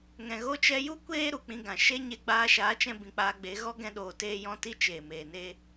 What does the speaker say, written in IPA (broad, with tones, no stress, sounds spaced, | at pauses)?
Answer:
ŋ ɛ̃˨ ɣ o˦ t͡ʃ ɛ˦ j u˦ kʷ eː˦ ɾ u˨ k͡p ĩ˧ ɡ ã˨ ʃ e˦ ɲ e˧ ɡ͡b aː˧ ʃ aː˨˦ t͡ʃ ɛ̃˧ b ĩ˨ k͡p aː˧ ɡ͡b e˨˦ ɣ ɔ˦ ɡ ɛ̃˧ ɗ oː˨ t eː˧ j ɔ̃˧ t i˦ t͡ʃ eː˨ m eː˨ n e˦